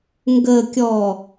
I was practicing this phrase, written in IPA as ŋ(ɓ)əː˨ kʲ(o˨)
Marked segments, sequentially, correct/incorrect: incorrect, incorrect

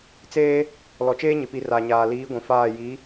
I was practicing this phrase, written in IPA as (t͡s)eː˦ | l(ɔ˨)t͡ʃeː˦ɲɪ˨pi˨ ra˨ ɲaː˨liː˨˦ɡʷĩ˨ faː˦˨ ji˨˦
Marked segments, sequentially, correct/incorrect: correct, correct

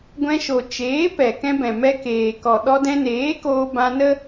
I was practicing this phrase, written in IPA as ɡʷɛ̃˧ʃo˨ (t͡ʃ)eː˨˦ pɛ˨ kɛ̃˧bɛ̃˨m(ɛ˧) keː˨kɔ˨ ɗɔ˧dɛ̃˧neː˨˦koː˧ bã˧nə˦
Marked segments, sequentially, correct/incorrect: correct, correct

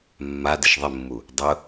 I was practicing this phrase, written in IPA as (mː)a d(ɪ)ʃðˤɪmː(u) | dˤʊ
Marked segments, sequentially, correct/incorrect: correct, correct, correct

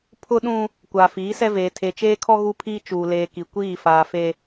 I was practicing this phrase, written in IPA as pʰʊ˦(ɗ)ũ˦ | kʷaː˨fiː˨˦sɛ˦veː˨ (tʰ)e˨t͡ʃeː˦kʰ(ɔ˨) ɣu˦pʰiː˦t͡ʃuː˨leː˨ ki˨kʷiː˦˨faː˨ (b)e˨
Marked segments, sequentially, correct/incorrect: correct, correct, incorrect, incorrect

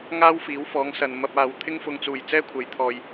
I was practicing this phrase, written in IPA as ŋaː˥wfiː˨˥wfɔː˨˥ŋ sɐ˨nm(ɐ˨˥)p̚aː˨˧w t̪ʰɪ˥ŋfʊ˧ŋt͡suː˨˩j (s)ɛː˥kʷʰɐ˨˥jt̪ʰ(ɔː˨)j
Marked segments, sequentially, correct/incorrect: incorrect, incorrect, correct

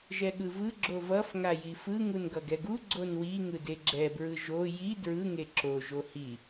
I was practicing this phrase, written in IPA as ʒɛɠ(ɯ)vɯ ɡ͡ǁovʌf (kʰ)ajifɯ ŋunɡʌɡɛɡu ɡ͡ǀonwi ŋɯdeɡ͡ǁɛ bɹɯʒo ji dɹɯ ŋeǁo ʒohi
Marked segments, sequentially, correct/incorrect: correct, incorrect

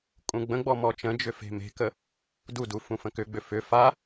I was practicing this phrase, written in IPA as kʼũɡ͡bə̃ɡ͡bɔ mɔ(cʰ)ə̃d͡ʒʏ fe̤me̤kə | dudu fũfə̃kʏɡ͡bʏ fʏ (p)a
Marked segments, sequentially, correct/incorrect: incorrect, incorrect

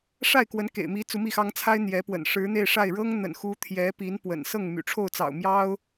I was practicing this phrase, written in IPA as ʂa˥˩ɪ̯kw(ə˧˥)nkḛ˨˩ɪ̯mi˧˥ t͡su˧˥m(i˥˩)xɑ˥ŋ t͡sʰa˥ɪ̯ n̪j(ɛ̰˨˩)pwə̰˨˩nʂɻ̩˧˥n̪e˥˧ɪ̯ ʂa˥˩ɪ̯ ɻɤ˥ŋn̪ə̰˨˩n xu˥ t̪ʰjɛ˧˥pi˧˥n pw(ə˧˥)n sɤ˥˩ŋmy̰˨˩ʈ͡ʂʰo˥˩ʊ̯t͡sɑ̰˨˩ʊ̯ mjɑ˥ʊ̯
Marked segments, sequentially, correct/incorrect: correct, correct, incorrect, incorrect

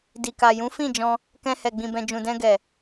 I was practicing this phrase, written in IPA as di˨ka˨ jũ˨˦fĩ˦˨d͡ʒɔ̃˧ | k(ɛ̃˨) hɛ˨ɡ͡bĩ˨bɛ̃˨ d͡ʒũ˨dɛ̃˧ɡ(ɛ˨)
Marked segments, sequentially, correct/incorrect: incorrect, correct

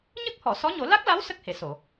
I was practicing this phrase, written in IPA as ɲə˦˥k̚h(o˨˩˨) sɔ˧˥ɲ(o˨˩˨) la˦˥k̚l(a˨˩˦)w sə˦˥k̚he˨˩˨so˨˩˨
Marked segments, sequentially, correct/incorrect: incorrect, incorrect, incorrect

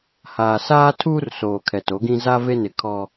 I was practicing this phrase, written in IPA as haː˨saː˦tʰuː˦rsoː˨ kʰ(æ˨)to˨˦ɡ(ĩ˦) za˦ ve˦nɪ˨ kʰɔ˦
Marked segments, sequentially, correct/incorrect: incorrect, correct

